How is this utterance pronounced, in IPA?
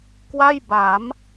kwa˥˩jba˩˦m

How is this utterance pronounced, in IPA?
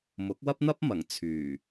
mʊ˨˥k̚wɐ˥p̚n̪ɐ˥p̚ mɐ˨˩ŋ t͡sʰyː˨˩

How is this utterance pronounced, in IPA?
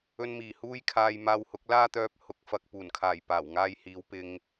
ɵ˧nmiː˨˩huː˥jkʰaː˧j maː˧whʊ˨˥k̚ laː˥t̪œː˧p̚hʊ˨˥k̚fɐ˨k̚ puː˨˩n kʰaː˨˩j paː˨˩wŋaː˧jhiː˨˧w pɪ˧ŋ

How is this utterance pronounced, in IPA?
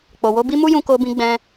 k͡po˨wo˧bi˦ mu˦jũ˧ko˧bĩ˧ ɡ͡bɛ̃˧

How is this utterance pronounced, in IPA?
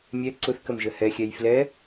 mʲɛ ǀʊθkəmʒə hɛxʲɛj flɛ

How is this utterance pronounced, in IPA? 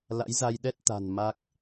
la̰˧˥jza˧j ɗɛ˦˥t̚t̪a̤˨˩n ma˦˥k̚

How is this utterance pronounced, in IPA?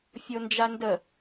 fʲond͡ʒandə

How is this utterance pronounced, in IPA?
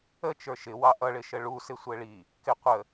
ət͡ʃə˞ ʃɪwɑ ʔʌɭɪʃə ɭusɪ sʷɛɭi | kɪqʷə

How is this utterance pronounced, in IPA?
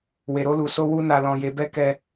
we˨ɾo˧lu˨ so˧ wu˦na˧ lɔ̃˧ je˧bɛ˦ kɛ˦

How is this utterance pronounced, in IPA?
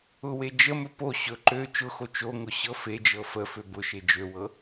ʊwe d͡ʒəmɵ po ɕɵ ǃø t͡ʃʊxo t͡ʃoŋʊ ɕɤfed͡ʒɤ fə føbʊʃe d͡ʒøwɤ

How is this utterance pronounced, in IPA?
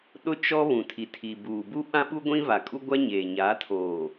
ɗʊ˦ t͡ʃɔ˦ βũ˨tʰi˨tʰi˨buː˨ bu˦ɓã˦ɓu˦ ɡʷĩ˦va˨kʼu˦ ɡʷa˦ɲeː˨ ɲaː˨˦tʰoː˨

